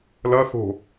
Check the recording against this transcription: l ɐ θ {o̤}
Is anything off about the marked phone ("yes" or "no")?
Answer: no